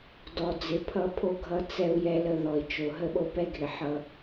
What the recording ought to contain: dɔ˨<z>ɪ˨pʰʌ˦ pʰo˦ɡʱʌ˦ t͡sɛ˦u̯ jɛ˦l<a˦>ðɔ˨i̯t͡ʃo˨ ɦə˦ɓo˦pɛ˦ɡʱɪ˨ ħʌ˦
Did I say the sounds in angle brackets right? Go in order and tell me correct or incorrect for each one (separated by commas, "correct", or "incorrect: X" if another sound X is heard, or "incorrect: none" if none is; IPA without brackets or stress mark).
incorrect: d͡z, incorrect: ə˦